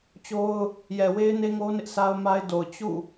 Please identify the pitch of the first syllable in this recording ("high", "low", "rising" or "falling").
high